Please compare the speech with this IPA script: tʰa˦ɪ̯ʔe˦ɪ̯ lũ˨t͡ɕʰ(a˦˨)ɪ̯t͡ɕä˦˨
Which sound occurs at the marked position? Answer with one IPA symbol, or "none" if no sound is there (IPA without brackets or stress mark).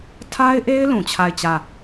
a˦˨